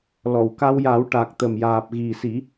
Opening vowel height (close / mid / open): mid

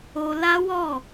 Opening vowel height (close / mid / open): mid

